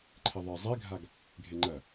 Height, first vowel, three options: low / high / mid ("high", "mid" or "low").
mid